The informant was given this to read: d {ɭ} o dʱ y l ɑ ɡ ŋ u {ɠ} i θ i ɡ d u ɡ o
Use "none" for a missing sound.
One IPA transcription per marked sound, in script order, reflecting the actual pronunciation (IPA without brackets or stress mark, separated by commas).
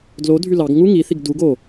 l, ŋ